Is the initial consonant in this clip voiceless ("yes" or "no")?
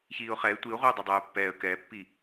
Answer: yes